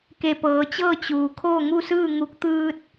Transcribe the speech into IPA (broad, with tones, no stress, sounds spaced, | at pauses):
k e˧˩ p ɤː˩˧ t͡ɕ ɤː˥˨ t͡ɕ uː˩ kʰ oː˥˨ ŋ u˥˨ s ɯː˥˨ ŋ u˧˥ k̚ t̪ ɯː˧ t̚